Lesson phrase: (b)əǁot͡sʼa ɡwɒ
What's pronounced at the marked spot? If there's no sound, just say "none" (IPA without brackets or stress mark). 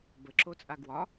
b